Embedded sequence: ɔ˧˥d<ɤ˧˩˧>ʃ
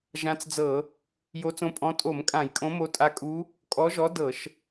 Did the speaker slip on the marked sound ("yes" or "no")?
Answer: no